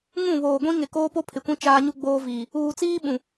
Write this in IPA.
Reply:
ŋ ũ˦˨ β oː˨ ɡʷ ĩ˦ ŋ ɪ˨ k oː˦ p o˦ pʰ ɪ˨ kʷ ĩ˦ t͡ʃ aː˦ ɲ u˦ ɡ͡b oː˦ v iː˨ | uː˨ t͡s iː˦ ɓ ũ˨

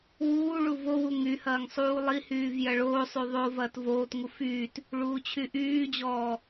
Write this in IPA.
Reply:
w uː ɭ u v o w u ŋ y h ɐː ŋ sˤ uː lˠ i h yː v j ɐ ɭ oː sˤ y ðˤ o v ɐː t v oː t ŋ u f yː t | ɭ uː t͡ɕʰ y ʔ yː d͡ʑ ɔː

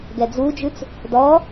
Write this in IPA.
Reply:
ɡ ɛ d͡z u d͡ʒ ʉ t͡s | d ɔ

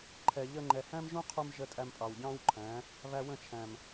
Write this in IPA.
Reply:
ǃʰ ɛ˨ ʎ əː˧ ŋ͡ǃ ɛ˨ h æ̃˦ m ʒ ũː˦ qʰ u˧ m ʒ ə˧ tʼ æ˧ m pʼ ɑ˨ w ɟ ɑ̃ː˦ w ǃʰ æ̃˨˦ | β æ˧ w ə̃˦˨ t͡ʃʰ æ̃˨ m

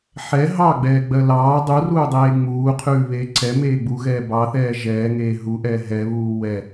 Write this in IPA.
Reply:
ħ ɛ ɦ ɑ ɡ͡b ɛː ɡ͡b ɜ l ɑː dˤ u r uː dˤ eː ŋ͡m uː qʰ ʉː β eː ǀ ɛ m eː ɡ͡b u ɣ ɛː b ɑ θ ɛː ʒ ɛː ŋ eː ɦ u ʔ ɛː ɦ ɛ β uː w ɛ

